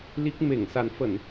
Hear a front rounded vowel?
no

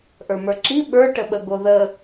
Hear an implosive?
yes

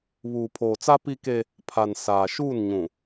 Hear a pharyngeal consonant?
no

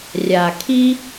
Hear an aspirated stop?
yes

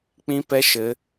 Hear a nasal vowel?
yes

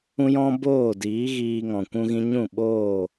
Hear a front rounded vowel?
no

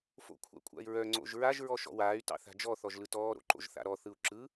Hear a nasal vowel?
no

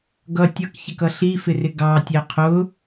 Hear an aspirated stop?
yes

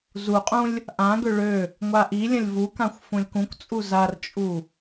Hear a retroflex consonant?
yes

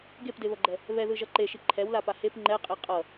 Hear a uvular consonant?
yes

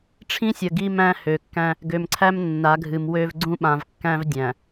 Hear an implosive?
yes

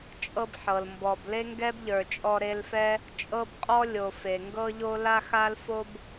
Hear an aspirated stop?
no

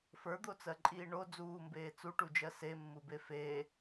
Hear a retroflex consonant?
yes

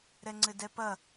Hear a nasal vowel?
no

